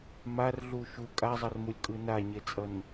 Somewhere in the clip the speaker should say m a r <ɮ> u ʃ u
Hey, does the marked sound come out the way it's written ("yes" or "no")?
yes